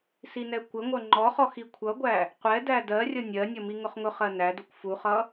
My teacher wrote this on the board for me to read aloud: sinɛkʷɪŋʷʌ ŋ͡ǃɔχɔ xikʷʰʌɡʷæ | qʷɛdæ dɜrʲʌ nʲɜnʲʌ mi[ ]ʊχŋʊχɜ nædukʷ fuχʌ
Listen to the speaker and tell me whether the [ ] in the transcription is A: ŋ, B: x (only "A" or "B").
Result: A